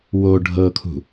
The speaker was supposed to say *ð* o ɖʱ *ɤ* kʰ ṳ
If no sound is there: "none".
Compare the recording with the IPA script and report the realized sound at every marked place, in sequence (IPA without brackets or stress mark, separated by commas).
w, ɤ